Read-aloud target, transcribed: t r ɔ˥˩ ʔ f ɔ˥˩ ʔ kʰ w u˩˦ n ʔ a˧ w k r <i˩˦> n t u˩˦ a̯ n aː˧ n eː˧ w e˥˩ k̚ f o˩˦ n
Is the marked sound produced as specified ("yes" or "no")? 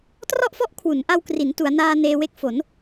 yes